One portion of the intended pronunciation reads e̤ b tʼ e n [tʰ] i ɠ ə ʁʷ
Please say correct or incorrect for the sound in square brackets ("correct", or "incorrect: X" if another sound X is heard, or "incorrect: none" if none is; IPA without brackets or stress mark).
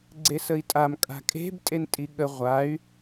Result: incorrect: tʼ